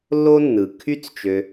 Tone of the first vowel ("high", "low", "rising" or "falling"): high